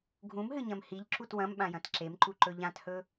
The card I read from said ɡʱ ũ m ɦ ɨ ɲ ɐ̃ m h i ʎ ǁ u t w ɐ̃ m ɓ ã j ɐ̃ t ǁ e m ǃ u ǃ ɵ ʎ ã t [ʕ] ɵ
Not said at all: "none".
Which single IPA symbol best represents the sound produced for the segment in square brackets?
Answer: h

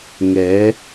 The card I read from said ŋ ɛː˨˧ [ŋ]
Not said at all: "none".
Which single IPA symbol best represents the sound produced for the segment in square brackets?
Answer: none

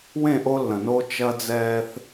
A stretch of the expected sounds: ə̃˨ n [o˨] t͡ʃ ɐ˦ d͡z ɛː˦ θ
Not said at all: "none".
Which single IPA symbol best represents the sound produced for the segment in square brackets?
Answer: o˦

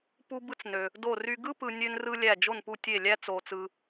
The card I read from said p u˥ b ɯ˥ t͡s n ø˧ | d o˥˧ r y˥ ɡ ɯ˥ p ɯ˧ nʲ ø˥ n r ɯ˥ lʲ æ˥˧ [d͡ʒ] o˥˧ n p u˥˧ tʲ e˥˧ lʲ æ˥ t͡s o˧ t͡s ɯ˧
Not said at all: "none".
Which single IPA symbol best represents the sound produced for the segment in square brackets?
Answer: d͡ʒ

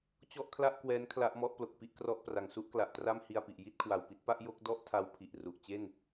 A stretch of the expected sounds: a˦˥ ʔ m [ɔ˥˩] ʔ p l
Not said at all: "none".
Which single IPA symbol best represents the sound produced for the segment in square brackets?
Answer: ɔ˦˥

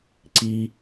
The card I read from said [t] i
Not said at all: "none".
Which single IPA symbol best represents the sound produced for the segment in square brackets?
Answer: ǀ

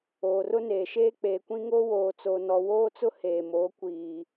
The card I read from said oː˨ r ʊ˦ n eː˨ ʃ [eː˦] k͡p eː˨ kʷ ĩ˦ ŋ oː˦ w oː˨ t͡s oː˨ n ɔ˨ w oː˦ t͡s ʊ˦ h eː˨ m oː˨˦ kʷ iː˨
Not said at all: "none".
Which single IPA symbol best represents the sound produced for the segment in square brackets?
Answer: eː˦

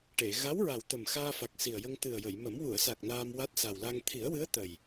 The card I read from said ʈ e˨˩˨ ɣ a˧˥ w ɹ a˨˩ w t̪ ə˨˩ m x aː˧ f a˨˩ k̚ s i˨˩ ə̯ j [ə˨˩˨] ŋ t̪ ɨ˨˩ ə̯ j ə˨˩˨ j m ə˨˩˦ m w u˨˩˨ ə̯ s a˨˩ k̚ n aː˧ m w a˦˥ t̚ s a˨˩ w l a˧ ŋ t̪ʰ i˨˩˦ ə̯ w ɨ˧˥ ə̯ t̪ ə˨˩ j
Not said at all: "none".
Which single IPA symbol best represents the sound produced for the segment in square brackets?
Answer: ə˧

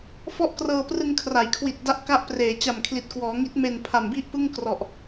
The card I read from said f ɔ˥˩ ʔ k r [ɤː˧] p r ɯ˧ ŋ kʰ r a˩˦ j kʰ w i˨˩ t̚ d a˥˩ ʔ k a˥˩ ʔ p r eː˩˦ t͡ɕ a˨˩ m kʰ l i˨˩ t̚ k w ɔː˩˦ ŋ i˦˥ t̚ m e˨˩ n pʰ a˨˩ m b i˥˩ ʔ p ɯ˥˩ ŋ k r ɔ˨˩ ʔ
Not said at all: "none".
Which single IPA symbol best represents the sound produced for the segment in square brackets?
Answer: ɤː˧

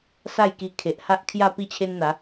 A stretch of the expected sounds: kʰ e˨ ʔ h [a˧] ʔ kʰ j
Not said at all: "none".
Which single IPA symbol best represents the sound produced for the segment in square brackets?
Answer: a˦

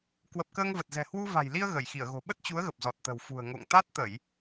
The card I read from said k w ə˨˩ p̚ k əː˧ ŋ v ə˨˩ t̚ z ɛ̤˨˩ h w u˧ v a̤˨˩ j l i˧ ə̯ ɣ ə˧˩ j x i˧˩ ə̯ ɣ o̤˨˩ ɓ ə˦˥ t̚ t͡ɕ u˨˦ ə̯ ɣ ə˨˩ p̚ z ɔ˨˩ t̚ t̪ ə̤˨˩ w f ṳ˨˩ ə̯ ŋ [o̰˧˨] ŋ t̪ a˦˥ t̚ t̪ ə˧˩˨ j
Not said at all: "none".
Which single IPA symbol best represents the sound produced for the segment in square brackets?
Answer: o̰˧˨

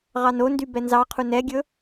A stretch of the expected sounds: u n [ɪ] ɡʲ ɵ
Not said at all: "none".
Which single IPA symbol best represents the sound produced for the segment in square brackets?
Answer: ɛ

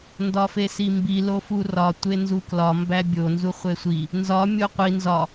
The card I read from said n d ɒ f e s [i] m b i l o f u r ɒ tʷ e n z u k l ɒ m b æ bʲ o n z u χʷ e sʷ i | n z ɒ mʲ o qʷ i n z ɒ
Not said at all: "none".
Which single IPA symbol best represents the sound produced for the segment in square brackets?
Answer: i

